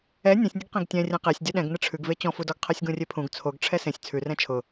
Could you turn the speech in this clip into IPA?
ɛ nʲ ɛ̃ sʲ nʲ ə ɡ q ẽ ɡ tʲ ɛ̃ rʲ ɛ̃ q e sʲ dʲ ɜ ɗ ɛ̃ ɡ n ə ʈ͡ʂʰ ʉ ɡ v e t͡ɕ ɔ̃ f u d ɔ ɡ qʰ ɜ sʲ ɡ ũ rʲ e pʰ ũ ɡ t͡sʰ o ɡ ʈ͡ʂʰ ɛ s ẽ sʲ t͡sʰ ʉ r ɛ̃ t͡ʃʰ ʊ

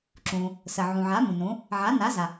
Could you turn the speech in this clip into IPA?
ǁ ũ˩ | s ə˩ ʕ ũ˩ ʕ a˩˥ m ũ˩ n ũ˩˥ | ʕ a˩˥ n a˩˥ z a˩

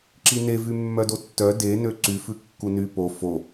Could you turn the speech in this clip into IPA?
ǁ i n e v y mː œ d o tː œ d e n ø ǀ y f ʉ kː u n y p o f o

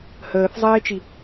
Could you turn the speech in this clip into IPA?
h əː θ zˤ eː t͡ʃ i

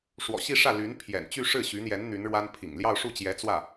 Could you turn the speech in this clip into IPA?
ʂ w ɔ̰˨˩ ɕ i˥˧ ʂ ä˥˩ l y˧˥ n pʰ j ɛ̰˨˩ n t͡ɕ y˥˧ ʂ ɻ̩˥˩ ɕ y˧˥ n̪ j ɛ˧˥ n n̪ y˧˥ n ɻ w a˥ n pʰ ḭ˨˩ ŋ l j ɑ˥˧ ʊ̯ ʂ u˥˩ t͡ɕ j ɛ˧˥ t͡s w ä˥˩

